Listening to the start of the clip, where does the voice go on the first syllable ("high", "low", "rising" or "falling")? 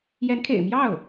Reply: rising